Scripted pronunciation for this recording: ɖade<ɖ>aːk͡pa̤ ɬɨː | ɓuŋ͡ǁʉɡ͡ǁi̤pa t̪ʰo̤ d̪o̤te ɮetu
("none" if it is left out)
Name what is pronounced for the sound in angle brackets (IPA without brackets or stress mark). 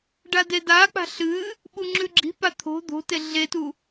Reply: d